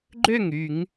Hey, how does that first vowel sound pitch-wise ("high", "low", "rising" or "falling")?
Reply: falling